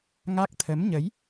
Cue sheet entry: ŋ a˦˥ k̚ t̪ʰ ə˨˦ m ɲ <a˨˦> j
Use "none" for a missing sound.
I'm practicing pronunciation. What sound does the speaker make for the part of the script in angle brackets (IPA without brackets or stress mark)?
ə˨˦